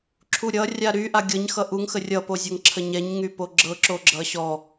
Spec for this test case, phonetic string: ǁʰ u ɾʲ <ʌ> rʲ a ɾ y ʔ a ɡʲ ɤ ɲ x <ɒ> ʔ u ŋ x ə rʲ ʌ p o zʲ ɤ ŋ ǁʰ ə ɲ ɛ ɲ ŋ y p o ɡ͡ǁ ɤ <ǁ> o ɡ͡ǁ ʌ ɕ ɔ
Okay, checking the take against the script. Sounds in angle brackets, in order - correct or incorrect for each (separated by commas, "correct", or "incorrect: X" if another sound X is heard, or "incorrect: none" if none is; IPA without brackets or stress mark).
correct, incorrect: ʌ, correct